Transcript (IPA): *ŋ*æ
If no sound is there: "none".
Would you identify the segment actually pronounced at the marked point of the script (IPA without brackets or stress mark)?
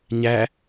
ɲ